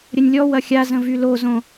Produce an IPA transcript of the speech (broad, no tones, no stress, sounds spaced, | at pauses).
ɾʲ ə nʲ lʲ ɔ w ɐ xʲ a z ə̃ v y l o z õ